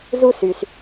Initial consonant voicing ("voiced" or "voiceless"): voiced